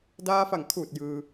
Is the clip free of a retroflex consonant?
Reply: yes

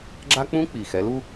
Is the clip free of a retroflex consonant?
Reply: yes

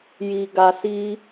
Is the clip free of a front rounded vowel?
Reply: yes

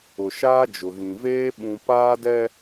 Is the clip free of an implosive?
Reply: no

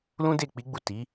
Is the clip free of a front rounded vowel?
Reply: yes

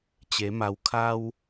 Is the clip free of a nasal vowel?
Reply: yes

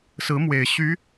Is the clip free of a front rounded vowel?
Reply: no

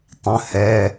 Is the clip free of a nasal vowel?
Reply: no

